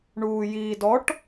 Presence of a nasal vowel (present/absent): absent